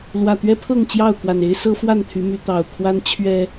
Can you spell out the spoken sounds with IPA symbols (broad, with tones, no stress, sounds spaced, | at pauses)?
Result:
l w ä˨˩ t̪ ɥ ɛ˦ pʰ ɤ˥˨ ŋ t͡ɕ j ɑ˥˨ ʊ̯ k w a˨˩ n e˦ ɪ̯ s ɤ˦ f w a˥˨ n t̪ʰ y˨˦ m y˨˦ t̪ ɑ˨˩ ʊ̯ kʰ w a˦ n t͡ɕʰ ɥ ɛ˨˩